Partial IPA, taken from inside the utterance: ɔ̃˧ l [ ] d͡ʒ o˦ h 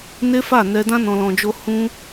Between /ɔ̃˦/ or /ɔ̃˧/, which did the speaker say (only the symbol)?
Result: ɔ̃˧